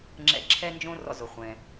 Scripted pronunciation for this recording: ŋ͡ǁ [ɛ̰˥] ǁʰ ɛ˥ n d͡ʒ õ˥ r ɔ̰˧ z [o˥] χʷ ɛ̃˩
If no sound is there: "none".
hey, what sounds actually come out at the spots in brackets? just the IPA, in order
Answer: ɛ̰˧, o˩

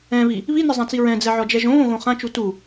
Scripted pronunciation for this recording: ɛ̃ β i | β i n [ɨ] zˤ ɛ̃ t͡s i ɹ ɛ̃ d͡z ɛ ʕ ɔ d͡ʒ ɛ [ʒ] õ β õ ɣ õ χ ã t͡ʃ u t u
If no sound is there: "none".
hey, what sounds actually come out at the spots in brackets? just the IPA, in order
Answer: ɨ, ʒ

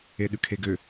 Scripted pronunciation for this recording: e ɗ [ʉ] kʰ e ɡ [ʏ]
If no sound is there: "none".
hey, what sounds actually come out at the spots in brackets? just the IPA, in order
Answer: ʉ, ʏ

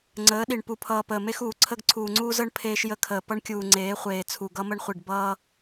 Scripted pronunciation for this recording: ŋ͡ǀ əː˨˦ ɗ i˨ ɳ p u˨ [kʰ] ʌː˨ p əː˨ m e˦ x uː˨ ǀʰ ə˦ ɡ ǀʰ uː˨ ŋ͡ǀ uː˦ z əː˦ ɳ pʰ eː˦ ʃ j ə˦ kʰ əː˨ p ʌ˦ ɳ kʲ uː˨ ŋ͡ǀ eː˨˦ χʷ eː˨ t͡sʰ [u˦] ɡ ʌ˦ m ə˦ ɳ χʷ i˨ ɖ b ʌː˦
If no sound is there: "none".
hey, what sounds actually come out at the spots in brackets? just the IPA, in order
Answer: pʰ, u˨

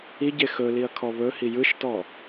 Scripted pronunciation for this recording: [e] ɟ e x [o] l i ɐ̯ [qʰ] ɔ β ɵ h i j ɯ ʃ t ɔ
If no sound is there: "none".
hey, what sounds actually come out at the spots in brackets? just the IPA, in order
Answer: i, ɵ, kʰ

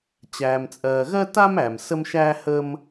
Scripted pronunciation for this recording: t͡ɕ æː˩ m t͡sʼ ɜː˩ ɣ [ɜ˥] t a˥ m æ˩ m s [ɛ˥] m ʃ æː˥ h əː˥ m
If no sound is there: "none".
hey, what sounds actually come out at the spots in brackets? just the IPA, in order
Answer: ɜ˥, ə˥

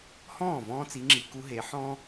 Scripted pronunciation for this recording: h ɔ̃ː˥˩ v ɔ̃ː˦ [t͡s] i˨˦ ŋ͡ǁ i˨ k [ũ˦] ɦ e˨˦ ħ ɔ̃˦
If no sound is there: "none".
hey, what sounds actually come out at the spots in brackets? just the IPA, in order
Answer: t͡s, u˦

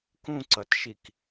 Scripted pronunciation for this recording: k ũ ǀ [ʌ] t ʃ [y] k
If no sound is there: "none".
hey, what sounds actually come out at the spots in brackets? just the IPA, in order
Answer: ʌ, i

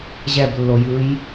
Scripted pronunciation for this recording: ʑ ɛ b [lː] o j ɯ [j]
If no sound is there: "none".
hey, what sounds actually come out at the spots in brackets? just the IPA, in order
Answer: lː, j

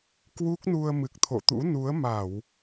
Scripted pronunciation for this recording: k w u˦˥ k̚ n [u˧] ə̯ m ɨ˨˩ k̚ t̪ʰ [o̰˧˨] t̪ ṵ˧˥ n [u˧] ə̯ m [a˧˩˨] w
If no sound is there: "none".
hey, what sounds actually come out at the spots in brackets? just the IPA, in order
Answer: u˧, o̰˧˨, u˨˦, a˧˩˨

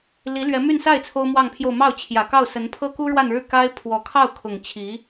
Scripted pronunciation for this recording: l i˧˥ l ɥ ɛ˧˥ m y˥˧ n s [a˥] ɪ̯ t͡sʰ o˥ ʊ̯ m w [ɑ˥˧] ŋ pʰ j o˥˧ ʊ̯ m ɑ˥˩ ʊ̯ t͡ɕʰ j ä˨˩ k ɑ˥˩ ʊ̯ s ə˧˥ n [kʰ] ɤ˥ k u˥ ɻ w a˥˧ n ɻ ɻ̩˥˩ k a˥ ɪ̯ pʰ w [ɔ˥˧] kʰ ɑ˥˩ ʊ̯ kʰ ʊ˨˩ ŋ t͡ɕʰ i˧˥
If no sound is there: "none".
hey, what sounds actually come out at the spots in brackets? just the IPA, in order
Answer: a˥˩, ɑ˥˧, pʰ, ɔ˧˥

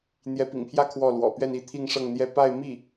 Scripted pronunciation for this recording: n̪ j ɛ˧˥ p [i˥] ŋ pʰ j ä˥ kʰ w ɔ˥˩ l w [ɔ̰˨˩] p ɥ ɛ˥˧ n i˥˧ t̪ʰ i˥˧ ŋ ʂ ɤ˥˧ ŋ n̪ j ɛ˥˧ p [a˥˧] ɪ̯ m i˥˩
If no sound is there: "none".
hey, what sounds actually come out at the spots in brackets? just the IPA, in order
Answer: ḭ˨˩, ɔ̰˨˩, a˥˧

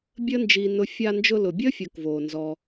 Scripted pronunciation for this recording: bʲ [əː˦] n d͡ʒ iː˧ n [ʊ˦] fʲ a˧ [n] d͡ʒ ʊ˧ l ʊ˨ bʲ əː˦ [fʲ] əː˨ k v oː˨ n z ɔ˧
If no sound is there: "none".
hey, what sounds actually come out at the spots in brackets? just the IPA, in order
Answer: əː˦, ʊ˧, n, fʲ

